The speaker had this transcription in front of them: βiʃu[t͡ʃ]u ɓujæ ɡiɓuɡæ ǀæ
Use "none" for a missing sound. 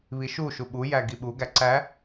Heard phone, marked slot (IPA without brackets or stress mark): ʃ